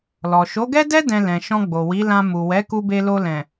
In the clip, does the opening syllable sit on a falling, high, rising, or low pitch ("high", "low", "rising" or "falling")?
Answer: low